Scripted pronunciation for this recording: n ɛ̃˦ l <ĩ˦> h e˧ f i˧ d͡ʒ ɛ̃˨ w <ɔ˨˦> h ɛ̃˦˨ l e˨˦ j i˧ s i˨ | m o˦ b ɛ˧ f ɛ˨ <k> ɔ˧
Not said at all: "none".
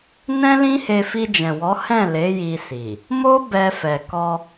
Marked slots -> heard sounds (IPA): ĩ˦, ɔ˨˦, k

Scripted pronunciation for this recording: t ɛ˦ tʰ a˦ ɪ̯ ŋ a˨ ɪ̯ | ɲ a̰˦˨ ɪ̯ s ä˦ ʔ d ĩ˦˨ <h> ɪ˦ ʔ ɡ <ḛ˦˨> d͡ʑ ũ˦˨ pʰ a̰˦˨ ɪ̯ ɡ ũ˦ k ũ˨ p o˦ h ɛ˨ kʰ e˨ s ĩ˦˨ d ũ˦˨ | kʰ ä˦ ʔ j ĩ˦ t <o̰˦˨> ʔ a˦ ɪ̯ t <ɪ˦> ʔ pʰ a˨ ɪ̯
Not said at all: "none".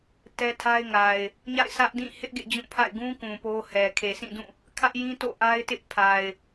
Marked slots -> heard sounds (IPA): h, ḛ˦˨, o̰˦˨, ɪ˦

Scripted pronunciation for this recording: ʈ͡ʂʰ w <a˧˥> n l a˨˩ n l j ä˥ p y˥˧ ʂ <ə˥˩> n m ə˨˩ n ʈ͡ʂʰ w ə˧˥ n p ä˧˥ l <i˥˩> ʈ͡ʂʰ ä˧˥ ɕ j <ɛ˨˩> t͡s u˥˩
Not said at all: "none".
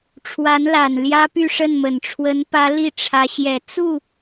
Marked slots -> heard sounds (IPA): a˧˥, ə˥˩, i˥˩, ɛ˨˩

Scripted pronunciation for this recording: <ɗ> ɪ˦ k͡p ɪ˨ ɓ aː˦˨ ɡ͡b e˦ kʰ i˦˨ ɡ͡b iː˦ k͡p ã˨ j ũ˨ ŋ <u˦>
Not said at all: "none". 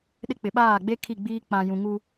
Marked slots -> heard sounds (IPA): ɗ, u˦

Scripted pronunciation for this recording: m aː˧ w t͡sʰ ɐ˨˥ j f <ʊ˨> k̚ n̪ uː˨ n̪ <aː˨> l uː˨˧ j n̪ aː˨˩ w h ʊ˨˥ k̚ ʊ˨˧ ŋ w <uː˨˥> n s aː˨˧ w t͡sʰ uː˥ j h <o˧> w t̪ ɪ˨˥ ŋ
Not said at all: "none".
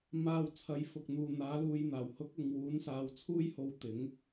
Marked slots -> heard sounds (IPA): ʊ˨, aː˨˥, uː˨˥, o˧

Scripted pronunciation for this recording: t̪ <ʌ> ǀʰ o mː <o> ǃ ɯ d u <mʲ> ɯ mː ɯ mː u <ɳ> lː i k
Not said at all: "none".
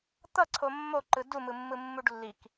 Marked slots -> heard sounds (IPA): ʌ, o, m, ɖ

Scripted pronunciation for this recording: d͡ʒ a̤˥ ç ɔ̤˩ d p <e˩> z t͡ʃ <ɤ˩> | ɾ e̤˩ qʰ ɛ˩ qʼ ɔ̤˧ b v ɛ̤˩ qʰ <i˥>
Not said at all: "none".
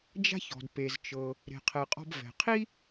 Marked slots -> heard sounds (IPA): e˩, ɤ˩, i˥

